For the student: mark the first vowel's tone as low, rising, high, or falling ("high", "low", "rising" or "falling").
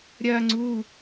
high